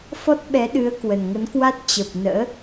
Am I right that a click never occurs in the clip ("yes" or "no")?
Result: yes